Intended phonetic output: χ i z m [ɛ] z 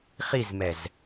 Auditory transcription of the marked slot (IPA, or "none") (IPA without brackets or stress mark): ɛ